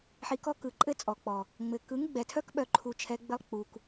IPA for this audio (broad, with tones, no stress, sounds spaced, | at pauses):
ħ i˧ k ɔ˦ k ɯ˨ ǃʼ ɘ˦ t͡sʼ ɔ˨ k͡p ɔ˨ | ŋ͡m ɘ˨ k ɯ˨˦ ŋ ɡ͡b ɛ˨ tʰ œ˦ k ɓ œ˧ ǃʰ u˧ t͡ʃʰ ɛ˧ ɡ͡b ɘ˧ lˠ k͡p u˨ k